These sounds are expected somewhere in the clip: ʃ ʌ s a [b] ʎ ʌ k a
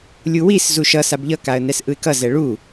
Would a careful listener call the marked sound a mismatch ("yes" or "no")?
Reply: no